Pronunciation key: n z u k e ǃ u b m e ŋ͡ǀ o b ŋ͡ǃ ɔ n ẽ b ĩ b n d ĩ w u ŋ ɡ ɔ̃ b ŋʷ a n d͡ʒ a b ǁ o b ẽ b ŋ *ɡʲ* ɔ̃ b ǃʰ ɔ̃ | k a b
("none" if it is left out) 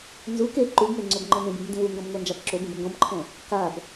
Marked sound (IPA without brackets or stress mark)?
ɡ